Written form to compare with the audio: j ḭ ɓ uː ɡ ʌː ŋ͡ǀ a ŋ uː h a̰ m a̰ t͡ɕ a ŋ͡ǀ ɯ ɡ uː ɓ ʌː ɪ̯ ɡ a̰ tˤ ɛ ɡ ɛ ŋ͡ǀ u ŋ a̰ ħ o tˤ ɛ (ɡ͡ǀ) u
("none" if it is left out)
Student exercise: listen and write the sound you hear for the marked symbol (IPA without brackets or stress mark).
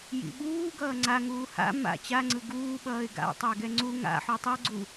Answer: ɡ͡ǀ